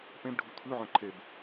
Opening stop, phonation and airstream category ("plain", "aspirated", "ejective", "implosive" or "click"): plain